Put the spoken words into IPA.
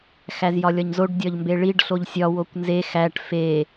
x æ z j ɒ lʲ ɒ ɲ z o ɖ dʲ ɒ ʎ m b e ɭ i ɖ ɬ o ʎ sʲ ɒ w o kʷ n z e x æ ʈ f e

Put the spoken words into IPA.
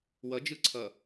w ʌ d͡ʒ ɯ ǀʰ ʌ

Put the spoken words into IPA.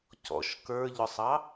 c ɔ̰ ʃ k ə˞ ʎ ʊ sˤ ɑ

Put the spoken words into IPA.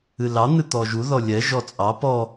ɨ l ɑ n̪ ɨ t̪ ɔ ʒ u ð ɔ lʲ ɛ ʒ ɔ t͡sʼ ɑ p ɔ

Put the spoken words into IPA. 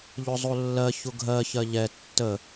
ʎ ʊ zˤ o lː ɜ ç ʊ ɡʱ ɜ ç ɜ ʎ ɛ tː ə

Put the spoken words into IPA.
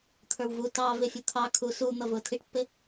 t̪ʰ ə˞ w v u t ɑ v ɪ fʲ u t̪ʰ ɑ kʰ uː s u n̪ ʌ v ʊː tʰ i ʈ pː ɪ

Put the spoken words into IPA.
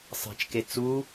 sˤ e̤ t͡ʃ k e t͡s u

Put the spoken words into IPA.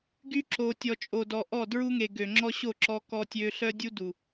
ɡ y˦ ǁ o˨ tʲ ɔ˨ t͡ʃʼ o˨ d ɔ˨ ʔ ɔ˦˨ d ɹ u˦ ŋ e˨ ɡ ø˨ ŋ͡ǁ ɔ˦ ɕ o˦˨ ǁ ɔ˦ k ɔ˦ tʲ ø˦ ɬ œ˦ dʲ u˦ d u˨

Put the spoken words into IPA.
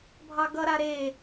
bʱ ɑ ɡ ʌ ɾ a ɾ e

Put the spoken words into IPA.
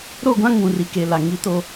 ɾ o˦˨ ɡʷ ã˦ ŋ ũ˨ r i˨ k e˨ l a˨ ŋ i˦ t o˦

